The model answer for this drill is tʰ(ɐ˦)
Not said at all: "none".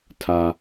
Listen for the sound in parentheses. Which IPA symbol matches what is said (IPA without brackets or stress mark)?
a˦